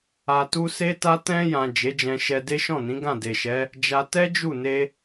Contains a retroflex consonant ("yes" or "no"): no